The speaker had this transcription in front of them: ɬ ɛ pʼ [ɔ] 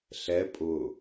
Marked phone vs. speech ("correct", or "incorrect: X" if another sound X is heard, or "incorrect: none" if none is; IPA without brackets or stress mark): incorrect: ʊ